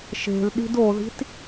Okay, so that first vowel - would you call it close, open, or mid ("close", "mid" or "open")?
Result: mid